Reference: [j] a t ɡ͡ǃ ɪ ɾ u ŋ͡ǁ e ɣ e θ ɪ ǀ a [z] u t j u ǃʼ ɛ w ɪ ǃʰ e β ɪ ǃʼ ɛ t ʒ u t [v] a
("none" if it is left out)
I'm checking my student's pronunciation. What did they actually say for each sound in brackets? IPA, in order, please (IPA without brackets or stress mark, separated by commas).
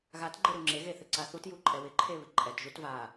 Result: ɣ, θ, v